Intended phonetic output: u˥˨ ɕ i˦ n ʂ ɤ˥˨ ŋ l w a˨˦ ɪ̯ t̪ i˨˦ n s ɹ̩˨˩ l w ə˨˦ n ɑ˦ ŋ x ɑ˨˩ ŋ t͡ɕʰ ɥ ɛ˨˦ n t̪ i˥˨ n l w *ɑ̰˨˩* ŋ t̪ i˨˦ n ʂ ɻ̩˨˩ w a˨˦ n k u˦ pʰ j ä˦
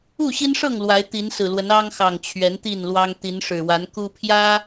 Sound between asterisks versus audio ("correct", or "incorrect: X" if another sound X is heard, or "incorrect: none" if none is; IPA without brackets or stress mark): incorrect: ɑ˦